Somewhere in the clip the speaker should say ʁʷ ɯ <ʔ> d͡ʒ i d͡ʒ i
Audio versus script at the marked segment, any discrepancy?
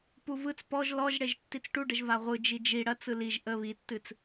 yes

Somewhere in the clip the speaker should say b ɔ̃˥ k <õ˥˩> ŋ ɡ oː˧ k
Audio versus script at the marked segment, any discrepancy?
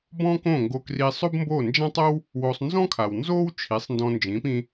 no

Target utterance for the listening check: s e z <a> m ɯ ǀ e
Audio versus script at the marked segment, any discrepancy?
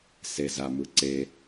no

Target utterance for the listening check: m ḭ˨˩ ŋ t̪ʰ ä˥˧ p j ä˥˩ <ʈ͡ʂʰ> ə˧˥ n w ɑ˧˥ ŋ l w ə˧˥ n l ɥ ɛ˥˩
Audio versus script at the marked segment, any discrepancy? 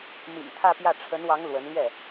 no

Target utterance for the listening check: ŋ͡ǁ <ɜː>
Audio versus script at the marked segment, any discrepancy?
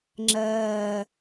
no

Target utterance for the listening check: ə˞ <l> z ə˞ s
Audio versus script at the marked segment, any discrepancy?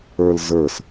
no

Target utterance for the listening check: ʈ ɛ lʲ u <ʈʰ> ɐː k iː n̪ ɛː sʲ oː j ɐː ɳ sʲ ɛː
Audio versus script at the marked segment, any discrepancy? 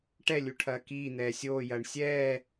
no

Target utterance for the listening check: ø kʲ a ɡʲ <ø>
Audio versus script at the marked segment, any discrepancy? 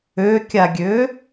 no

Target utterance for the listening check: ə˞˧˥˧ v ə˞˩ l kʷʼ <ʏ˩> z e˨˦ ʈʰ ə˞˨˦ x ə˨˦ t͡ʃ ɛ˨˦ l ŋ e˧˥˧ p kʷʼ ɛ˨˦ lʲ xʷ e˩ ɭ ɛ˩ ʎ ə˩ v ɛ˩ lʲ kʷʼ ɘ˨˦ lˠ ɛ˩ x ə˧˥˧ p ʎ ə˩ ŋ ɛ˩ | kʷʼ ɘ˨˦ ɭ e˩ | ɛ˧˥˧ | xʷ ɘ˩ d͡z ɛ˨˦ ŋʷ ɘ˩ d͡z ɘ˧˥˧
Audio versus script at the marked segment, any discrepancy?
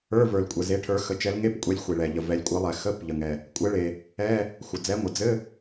yes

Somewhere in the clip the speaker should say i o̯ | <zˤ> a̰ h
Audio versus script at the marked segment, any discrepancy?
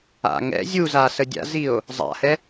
no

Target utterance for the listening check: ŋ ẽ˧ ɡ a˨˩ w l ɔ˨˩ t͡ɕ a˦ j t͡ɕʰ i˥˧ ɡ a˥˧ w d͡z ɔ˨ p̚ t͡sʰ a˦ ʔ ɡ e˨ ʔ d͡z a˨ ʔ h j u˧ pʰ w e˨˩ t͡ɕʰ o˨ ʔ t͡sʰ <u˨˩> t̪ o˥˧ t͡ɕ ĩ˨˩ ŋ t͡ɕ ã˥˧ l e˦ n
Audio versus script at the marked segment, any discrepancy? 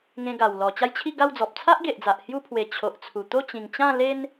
no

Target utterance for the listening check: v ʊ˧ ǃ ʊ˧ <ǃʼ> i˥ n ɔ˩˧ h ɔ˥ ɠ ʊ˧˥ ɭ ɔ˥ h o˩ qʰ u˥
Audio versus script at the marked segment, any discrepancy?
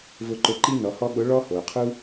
yes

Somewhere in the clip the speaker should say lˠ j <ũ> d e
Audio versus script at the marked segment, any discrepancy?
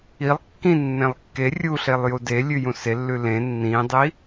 yes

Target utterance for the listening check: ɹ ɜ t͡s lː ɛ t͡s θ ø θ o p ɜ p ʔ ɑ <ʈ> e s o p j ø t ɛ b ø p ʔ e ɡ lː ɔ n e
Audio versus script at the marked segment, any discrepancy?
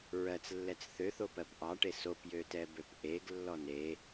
no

